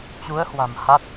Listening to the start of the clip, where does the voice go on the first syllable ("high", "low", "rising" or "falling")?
rising